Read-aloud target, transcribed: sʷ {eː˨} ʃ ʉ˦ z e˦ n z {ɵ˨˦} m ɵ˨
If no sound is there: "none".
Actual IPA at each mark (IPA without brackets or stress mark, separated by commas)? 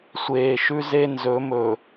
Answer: eː˨, ɵ˨˦